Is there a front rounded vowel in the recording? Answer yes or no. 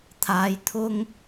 no